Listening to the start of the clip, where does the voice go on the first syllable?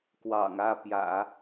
low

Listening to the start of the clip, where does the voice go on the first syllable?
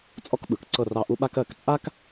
high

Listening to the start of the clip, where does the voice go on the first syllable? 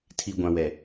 low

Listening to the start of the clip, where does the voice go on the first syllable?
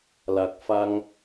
low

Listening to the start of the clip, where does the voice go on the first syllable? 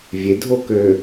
rising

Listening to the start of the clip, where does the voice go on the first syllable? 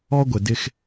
high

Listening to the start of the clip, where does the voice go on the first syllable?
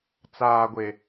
low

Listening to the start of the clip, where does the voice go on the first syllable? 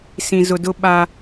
low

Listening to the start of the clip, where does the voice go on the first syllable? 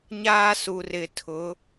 high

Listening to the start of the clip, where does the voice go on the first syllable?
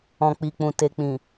low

